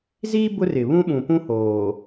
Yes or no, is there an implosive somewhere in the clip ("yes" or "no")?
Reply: yes